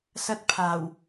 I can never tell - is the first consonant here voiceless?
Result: yes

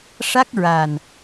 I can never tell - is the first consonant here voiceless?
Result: yes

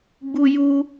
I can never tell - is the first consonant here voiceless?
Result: no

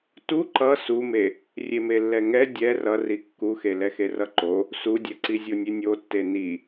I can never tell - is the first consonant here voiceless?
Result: yes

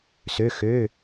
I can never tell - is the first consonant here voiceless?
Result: yes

